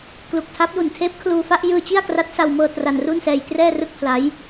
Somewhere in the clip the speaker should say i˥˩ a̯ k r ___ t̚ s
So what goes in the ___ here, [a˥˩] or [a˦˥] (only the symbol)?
a˦˥